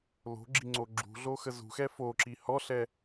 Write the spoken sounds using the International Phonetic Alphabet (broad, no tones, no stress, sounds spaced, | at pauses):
l o̤ ɡ͡ǁ i ŋ͡ǀ o ɡ͡ǁ ṳ ɮ o x ə z ṳ x ɛ f o ǁ i h ɔ ɬ ɛ